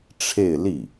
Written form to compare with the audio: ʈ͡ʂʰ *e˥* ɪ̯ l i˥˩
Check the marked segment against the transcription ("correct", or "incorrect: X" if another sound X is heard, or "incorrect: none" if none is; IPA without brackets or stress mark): incorrect: e˥˧